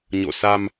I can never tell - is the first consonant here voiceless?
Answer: no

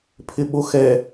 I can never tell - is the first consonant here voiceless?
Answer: yes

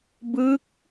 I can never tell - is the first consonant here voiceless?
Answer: no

